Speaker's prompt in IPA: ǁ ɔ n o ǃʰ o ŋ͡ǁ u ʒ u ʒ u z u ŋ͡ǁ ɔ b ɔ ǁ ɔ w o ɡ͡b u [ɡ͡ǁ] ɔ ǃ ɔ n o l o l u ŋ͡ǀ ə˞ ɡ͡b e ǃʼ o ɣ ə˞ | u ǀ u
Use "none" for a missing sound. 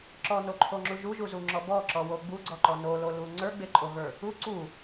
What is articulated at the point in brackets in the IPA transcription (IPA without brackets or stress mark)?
ɡ͡ǀ